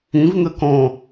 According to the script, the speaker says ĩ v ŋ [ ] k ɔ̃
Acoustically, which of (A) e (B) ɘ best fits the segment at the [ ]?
B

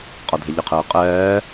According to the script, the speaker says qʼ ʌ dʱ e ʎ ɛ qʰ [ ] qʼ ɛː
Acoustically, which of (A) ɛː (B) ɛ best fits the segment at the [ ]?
A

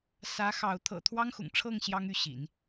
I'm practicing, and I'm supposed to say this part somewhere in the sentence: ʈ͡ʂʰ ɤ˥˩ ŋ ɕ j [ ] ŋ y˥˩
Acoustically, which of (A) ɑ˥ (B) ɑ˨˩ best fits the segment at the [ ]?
A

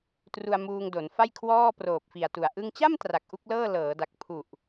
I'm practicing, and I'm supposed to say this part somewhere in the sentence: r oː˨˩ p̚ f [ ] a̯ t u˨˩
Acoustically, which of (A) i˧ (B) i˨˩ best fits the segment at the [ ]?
B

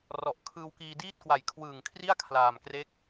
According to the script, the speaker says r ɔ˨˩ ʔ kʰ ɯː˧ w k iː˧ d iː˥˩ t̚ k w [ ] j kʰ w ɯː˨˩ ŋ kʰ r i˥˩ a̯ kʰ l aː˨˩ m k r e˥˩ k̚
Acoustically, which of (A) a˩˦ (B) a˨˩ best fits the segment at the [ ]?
B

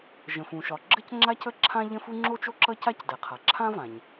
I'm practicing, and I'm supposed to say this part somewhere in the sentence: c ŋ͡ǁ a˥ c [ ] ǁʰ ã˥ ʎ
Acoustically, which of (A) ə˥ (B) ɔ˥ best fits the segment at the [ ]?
A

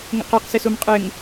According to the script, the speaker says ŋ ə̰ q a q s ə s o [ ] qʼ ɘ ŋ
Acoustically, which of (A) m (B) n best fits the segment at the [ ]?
A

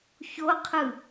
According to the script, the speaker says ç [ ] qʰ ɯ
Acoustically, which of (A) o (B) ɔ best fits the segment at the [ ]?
A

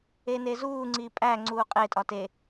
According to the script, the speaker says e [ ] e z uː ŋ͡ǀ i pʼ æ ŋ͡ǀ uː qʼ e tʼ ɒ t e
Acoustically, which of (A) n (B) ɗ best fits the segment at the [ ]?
A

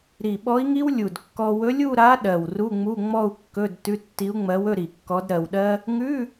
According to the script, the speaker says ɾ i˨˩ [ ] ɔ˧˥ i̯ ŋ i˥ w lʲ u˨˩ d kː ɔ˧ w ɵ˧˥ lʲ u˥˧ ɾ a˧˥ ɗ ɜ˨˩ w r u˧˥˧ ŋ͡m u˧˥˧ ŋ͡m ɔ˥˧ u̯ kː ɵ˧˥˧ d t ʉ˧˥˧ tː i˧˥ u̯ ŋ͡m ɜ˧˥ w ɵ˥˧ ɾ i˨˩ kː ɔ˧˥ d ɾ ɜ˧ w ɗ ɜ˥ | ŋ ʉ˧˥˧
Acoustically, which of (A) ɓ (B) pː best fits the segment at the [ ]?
A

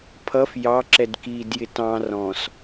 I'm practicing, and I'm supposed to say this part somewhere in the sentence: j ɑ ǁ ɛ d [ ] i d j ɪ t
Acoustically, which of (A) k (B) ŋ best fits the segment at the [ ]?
A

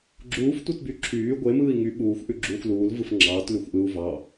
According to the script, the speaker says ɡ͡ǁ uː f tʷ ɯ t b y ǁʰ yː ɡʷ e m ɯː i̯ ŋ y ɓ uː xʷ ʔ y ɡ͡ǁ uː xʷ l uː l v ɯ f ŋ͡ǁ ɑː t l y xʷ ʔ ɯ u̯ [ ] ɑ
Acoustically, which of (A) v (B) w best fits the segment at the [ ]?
A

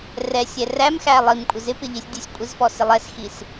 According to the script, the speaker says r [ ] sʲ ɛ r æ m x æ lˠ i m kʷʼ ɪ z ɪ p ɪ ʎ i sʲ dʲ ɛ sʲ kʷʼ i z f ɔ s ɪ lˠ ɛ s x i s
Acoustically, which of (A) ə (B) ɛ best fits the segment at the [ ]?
B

